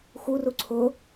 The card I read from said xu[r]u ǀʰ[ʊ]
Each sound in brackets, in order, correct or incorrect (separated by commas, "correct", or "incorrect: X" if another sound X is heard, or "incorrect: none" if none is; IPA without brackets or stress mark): correct, correct